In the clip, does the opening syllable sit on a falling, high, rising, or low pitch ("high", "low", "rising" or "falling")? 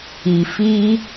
low